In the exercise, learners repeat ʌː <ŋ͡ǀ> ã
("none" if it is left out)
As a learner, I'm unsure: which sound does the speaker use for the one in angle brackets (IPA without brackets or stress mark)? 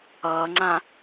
ŋ͡ǀ